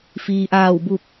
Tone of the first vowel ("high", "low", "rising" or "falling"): low